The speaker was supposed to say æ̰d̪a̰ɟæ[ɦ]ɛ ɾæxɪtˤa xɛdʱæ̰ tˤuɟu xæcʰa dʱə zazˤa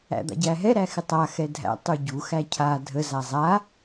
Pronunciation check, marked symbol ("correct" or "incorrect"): correct